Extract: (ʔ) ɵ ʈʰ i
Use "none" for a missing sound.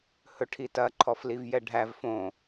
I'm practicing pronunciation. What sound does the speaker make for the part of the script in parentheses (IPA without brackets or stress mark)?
h